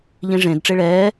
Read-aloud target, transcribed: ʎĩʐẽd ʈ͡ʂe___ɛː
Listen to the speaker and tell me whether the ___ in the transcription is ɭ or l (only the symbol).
ɭ